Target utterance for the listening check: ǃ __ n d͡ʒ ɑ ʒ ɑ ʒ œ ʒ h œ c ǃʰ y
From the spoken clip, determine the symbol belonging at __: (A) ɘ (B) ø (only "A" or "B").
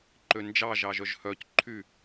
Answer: B